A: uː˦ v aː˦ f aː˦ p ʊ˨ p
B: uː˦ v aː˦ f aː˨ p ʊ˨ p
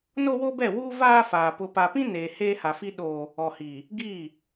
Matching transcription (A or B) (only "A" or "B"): B